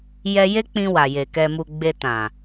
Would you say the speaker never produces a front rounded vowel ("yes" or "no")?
yes